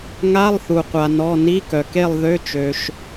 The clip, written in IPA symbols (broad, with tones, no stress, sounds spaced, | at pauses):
ŋ a˧˥˧ lˠ θ u˩ qʷ a˩ n ɔ˩˧˩ n i˧˥˧ k œ˩ k e˥˨ lˠ ð ø˧˥˧ t͡ʃ ø˩ ʃ